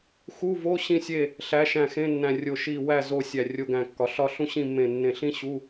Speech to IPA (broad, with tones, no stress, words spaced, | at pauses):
xu˧˥˧vo˧˥˧ ɕĩ˥˨sʲe˥˨ | ɬæ˨˥ʃæ̃˧˩xẽ˧˥˧nːæ̃˧˩ rʲo˧˩ʃi˧˩wæ˥˨ zo˧˩ sʲæ˧˩rʲo˧˥˧ɡæ̃˧˩kːɒ˨˥ ɬɒ˥˨ ɬũ˥ɕĩ˥˨ mːẽ˧˩ nːẽ˧˩ɬĩ˥ɕu˧˥˧